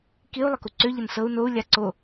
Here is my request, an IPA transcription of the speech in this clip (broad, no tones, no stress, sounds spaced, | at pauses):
k i u̯ lˠ ə k u ǀ ø ʎ ə n s ɤ u̯ n o u̯ lʲ a ǀ o